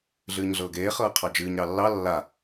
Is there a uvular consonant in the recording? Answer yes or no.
yes